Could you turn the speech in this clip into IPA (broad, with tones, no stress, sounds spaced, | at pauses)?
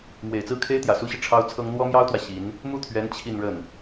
m w e˨˩ ɪ̯ t͡s ɹ̩˥ kʰ e˥ ɪ̯ t̪ j ä˨˩ s u˥ ɕ i˨ ʈ͡ʂʰ ɑ˥ ʊ̯ t͡sʰ ɤ˥ ŋ n̪ w ɔ˥ m j ɑ˥ ʊ̯ t̪ w ä˨ ɕ i˧˥ n | m u˥˩ t̪ʰ ɥ ɛ˧˥ n t͡ɕʰ i˥˧ n ɻ ə˥˩ n